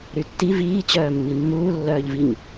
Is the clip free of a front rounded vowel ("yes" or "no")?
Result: no